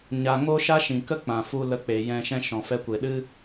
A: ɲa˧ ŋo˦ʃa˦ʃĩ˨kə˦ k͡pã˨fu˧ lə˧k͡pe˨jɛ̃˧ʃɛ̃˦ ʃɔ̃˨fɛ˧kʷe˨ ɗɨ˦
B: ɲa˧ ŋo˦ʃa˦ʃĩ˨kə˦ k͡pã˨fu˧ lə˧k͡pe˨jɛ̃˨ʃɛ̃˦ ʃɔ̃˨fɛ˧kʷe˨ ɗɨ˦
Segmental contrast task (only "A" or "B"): A